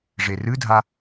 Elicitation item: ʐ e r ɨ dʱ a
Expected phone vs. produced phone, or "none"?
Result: none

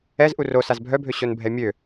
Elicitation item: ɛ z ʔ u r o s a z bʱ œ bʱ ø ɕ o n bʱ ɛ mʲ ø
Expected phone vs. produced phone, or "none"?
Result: none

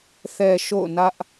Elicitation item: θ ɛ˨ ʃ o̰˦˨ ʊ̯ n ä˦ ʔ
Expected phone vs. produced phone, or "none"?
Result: none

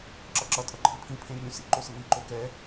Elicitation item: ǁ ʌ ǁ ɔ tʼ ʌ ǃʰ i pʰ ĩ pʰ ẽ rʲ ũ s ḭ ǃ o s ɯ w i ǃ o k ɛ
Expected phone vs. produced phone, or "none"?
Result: ɔ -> ʌ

